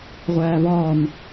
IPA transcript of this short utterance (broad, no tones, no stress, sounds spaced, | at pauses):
ʁʷ æː v ɒː n